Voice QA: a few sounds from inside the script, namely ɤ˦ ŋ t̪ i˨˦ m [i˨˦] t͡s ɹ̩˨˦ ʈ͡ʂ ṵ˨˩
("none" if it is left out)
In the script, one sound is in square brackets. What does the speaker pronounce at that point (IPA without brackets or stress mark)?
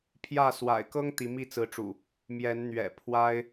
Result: i˥˨